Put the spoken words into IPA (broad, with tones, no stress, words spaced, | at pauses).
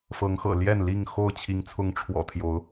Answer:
fɤ˨˦ŋxɤ̰˨˩ ljɛ˥˨nli˥˨ŋxo˥˨ʊ̯ t͡ɕʰi˨˦ŋt͡sʰʊ˨˦ŋʈ͡ʂʰwɔ̰˨˩ t̪ʰjo˨˦ʊ̯